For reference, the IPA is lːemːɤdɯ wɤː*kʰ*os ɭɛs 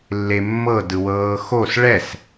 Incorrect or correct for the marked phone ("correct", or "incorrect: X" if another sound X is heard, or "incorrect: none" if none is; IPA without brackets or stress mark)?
incorrect: x